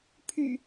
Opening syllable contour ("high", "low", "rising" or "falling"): low